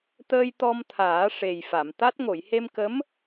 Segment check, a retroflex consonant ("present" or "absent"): present